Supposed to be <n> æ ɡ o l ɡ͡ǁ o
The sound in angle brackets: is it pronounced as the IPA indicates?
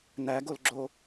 yes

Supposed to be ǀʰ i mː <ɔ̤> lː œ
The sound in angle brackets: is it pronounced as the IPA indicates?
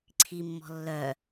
yes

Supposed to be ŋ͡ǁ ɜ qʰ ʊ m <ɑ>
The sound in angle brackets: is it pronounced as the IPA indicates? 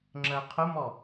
no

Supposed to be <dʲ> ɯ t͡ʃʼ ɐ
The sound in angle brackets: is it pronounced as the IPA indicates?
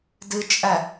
no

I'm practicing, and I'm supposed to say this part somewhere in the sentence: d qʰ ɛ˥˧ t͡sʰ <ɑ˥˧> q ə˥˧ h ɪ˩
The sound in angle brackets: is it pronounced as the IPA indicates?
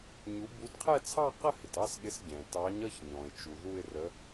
yes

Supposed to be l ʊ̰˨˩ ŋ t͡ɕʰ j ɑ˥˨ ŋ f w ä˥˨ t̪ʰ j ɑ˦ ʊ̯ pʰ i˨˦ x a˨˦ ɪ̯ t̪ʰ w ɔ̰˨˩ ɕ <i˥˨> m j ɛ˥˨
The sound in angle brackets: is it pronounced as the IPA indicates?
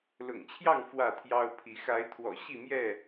yes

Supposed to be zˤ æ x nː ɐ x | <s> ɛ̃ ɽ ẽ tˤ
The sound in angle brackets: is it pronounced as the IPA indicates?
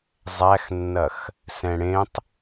yes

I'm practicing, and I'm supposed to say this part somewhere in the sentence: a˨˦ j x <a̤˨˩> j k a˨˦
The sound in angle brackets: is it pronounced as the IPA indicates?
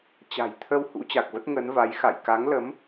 no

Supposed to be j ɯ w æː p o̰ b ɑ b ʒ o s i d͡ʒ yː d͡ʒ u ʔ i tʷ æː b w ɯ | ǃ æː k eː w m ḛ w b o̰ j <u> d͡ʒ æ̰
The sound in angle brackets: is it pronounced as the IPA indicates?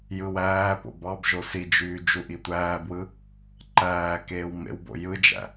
no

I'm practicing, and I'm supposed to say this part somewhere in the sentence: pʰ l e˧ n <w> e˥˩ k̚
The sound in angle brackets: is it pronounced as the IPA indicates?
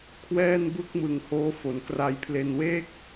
yes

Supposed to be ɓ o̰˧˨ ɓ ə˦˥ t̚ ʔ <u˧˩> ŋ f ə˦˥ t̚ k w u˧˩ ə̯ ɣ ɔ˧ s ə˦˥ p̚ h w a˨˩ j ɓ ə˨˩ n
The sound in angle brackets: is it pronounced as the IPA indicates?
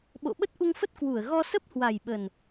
no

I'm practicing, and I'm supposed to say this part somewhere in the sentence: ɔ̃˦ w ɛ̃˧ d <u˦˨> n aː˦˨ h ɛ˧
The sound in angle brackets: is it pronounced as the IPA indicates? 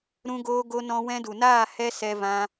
no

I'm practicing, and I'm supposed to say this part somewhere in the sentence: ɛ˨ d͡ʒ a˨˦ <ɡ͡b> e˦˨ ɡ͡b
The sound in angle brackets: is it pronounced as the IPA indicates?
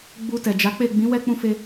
no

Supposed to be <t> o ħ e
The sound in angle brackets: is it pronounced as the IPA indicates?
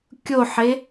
no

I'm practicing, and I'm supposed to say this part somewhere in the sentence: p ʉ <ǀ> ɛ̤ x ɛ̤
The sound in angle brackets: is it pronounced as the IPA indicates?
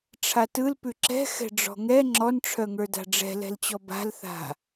no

